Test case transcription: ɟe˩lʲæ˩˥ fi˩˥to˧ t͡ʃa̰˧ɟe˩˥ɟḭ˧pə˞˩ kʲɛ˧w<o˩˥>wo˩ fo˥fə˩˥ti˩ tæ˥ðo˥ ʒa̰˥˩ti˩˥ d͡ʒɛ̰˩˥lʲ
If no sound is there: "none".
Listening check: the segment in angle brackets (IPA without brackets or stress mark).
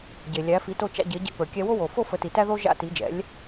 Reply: o˥